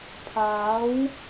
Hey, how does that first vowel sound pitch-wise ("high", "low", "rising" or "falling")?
rising